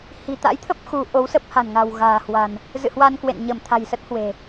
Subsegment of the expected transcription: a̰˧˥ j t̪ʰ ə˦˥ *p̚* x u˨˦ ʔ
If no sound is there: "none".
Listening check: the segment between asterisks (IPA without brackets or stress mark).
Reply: p̚